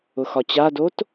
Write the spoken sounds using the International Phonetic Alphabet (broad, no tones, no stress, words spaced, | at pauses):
ʊxɒt͡ɕadot